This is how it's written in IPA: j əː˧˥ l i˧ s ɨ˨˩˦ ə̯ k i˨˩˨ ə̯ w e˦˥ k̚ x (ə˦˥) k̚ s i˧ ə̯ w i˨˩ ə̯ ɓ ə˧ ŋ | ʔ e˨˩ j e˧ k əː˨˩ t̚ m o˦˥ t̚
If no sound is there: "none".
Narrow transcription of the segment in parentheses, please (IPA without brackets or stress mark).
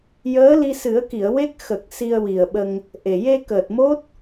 ə˨˩